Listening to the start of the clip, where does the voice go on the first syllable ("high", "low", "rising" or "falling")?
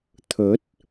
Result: rising